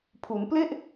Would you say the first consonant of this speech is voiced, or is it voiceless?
voiceless